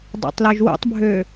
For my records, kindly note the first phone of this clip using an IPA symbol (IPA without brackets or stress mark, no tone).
dˤ